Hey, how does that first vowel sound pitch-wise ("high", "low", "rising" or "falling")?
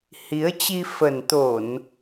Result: rising